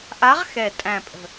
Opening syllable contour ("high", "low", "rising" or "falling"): rising